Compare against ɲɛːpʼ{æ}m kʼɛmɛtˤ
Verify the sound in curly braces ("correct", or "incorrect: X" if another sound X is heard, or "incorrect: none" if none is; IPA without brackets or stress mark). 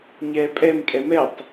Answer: incorrect: ɛ